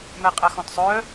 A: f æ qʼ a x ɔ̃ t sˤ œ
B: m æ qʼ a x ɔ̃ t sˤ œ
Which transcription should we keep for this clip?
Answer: B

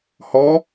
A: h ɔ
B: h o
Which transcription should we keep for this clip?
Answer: A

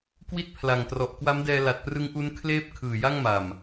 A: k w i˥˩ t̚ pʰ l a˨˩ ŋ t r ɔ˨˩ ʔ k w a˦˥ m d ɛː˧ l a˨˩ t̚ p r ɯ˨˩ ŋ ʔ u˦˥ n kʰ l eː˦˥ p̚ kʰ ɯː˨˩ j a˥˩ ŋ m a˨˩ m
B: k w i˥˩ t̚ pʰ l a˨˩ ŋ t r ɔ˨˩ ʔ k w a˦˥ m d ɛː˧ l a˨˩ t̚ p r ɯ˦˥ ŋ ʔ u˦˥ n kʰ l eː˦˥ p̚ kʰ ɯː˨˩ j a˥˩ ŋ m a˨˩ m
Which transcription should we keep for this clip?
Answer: B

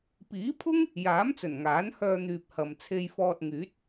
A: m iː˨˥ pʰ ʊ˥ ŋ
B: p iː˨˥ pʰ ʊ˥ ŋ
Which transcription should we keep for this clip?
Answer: B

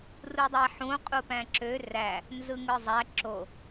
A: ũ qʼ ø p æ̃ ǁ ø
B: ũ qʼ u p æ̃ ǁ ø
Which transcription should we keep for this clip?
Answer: B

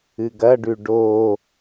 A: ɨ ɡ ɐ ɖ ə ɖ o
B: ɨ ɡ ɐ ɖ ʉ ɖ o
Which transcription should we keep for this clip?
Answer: B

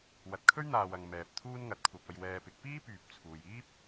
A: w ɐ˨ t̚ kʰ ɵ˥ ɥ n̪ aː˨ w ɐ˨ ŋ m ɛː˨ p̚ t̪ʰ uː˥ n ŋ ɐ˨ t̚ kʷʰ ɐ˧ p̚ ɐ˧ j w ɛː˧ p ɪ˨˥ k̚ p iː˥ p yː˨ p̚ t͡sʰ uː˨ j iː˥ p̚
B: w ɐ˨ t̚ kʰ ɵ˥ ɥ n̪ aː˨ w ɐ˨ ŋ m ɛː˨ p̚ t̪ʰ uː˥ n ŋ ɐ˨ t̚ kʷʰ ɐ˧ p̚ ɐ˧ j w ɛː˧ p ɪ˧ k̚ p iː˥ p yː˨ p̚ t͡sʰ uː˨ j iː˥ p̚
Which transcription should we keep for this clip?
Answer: A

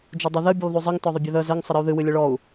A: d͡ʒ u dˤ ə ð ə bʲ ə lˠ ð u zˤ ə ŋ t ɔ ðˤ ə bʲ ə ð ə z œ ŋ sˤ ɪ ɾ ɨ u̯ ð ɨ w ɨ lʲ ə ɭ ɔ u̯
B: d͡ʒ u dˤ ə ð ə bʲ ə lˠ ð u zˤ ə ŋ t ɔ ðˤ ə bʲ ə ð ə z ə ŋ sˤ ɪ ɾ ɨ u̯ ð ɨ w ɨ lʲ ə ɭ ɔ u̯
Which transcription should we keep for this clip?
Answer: B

